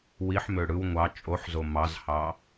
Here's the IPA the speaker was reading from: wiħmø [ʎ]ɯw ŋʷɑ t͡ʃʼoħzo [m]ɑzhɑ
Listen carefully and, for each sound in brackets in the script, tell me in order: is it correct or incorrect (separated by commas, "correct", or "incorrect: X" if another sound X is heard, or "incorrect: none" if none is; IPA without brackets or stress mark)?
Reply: incorrect: ɽ, correct